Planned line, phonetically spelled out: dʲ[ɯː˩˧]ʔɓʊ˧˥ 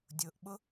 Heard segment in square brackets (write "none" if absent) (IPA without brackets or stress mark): ʊː˩˧